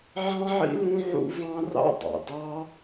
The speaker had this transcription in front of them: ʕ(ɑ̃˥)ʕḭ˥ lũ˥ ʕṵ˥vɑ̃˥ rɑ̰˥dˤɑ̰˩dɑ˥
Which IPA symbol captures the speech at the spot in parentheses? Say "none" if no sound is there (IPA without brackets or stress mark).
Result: ɑ̃˥